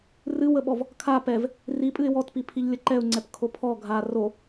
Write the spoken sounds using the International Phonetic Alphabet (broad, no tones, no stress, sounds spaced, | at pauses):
r ɨ w ə ɓ ɔ v | kʰ a p ɛ v | r i pʼ ɨ ɪ̯ w ɔ t p i pʰ i ʎ lʲ ə ǃ ɛ ʊ̯ ŋ͡ǀ ɛ p kʰ o pʰ ɔ ɡʱ a r o